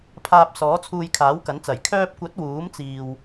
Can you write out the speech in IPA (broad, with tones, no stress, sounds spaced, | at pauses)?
pʰ aː˧ p̚ s ɔː˨˥ t͡sʰ uː˧ j kʰ aː˨˥ w k ɐ˨˥ n t͡s ɐ˨˩ j kʰ œː˧ p̚ kʷ ɐ˨˥ t̚ w uː˨˥ m t͡s iː˨ w